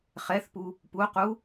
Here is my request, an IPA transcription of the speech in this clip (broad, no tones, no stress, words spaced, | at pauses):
χɛθpu | puqu